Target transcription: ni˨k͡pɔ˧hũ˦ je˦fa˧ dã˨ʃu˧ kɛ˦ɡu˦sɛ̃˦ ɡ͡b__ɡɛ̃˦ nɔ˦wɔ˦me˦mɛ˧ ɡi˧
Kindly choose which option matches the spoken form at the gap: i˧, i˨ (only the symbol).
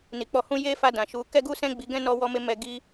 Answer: i˧